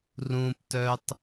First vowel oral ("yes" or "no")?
no